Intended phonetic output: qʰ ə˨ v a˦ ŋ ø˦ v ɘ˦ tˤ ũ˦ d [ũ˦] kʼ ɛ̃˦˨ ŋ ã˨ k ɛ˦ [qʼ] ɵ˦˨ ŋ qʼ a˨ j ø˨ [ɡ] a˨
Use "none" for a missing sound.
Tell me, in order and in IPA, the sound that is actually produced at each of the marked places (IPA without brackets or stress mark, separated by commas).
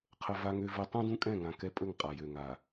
ũ˦, pʼ, ŋ